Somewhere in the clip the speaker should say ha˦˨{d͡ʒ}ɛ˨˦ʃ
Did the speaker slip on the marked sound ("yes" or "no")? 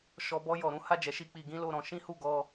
no